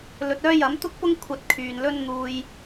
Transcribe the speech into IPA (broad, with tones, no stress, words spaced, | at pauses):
lɵ˨t̚œː˥jɐ˨˥m t̪ʊ˥k̚pʊ˥ŋ kʷʰɐ˧t̚kʰyː˨nlɵ˥n n̪uː˥j